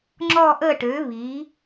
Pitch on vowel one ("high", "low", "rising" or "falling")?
falling